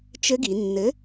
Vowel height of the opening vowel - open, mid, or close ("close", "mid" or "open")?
mid